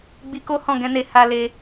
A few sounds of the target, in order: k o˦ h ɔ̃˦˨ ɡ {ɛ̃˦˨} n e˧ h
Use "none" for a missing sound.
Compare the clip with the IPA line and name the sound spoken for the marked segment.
ɛ̃˨˦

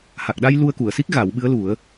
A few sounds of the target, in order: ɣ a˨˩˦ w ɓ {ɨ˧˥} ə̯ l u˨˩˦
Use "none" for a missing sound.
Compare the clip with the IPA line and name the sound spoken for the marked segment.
ɨ˧˥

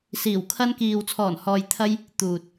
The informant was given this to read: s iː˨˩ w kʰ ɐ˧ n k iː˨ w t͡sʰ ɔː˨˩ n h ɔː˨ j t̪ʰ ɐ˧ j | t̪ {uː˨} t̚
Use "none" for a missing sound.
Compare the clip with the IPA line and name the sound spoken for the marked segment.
uː˨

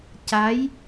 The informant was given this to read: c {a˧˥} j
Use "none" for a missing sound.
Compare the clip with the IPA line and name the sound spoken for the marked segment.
a˧˥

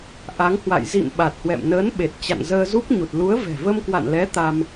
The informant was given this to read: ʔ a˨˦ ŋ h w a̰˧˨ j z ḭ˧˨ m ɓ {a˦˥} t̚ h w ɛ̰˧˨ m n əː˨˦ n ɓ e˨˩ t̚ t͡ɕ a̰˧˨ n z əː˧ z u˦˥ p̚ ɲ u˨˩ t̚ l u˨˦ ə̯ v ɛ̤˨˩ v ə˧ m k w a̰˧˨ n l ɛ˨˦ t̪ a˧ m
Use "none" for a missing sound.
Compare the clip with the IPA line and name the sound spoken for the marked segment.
a˨˩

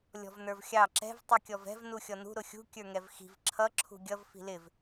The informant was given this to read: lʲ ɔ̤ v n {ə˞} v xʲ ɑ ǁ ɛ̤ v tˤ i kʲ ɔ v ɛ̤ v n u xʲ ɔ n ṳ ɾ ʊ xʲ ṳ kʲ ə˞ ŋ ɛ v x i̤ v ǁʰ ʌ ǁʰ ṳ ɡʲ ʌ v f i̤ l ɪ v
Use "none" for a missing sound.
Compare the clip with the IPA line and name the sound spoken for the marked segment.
ə˞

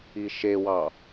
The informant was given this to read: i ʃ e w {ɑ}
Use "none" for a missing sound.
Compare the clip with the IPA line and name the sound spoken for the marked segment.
ɑ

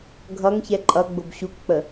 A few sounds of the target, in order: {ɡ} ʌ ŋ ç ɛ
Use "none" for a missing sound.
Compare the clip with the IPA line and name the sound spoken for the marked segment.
ɡʱ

